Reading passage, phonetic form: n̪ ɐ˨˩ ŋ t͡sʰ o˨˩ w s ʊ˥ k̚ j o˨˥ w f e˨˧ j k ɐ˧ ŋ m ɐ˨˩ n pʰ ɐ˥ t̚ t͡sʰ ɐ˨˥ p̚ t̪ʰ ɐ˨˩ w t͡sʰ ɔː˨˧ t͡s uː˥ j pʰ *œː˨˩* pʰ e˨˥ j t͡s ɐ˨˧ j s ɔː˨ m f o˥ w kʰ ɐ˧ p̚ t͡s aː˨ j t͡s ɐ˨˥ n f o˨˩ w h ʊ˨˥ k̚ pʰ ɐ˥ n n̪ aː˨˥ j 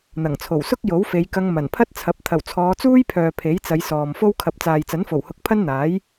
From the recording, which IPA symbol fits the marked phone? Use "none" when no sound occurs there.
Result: œː˨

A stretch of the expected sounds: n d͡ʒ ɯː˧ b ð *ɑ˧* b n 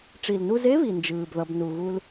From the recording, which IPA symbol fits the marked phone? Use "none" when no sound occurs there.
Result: ʌ˧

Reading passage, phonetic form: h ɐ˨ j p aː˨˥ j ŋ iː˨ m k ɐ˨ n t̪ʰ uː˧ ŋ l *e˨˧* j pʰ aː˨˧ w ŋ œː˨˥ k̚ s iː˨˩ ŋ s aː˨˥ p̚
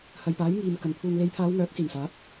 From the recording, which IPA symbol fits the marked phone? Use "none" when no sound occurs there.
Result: e˨˧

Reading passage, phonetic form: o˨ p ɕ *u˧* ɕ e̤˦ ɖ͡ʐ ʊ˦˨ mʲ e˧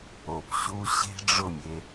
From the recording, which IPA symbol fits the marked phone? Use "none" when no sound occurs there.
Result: u˧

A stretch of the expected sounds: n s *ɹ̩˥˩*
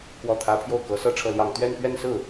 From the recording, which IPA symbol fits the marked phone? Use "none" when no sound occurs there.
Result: ɹ̩˥˩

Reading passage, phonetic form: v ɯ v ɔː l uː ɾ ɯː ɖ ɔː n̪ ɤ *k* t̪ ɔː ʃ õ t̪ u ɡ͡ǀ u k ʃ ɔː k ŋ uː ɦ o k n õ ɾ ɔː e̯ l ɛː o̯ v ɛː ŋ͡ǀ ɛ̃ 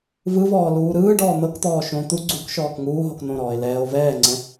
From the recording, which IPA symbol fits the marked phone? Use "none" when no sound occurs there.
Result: k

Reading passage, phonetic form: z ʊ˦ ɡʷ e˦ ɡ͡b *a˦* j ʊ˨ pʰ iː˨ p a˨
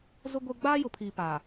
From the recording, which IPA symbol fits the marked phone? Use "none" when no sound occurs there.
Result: aː˦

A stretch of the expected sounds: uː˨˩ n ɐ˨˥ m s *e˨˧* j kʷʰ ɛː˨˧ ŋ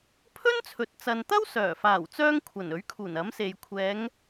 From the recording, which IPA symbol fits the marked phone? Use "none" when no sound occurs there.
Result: e˨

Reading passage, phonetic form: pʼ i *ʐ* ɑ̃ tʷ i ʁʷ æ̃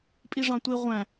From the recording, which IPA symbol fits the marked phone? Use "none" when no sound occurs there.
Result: ʐ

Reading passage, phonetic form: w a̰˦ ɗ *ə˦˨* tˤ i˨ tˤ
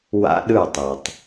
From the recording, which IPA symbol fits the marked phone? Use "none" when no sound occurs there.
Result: ɯ˦˨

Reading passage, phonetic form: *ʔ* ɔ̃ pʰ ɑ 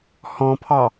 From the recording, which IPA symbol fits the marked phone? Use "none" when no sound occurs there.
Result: h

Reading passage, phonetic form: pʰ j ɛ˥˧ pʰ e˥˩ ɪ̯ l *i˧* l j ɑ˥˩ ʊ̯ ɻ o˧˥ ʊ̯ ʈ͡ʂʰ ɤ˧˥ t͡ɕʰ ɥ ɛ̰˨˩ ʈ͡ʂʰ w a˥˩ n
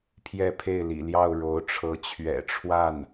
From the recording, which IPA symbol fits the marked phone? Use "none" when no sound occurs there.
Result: ḭ˨˩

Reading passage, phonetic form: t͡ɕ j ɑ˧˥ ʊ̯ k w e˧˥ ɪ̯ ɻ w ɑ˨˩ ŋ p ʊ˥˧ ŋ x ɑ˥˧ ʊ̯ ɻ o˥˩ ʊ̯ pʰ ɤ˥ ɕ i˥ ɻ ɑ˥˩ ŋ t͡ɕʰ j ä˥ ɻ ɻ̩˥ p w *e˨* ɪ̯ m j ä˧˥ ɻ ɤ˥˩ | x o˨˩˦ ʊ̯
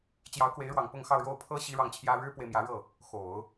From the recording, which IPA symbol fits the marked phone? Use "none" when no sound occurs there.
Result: e˨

